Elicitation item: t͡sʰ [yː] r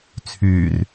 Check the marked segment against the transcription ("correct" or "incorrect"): correct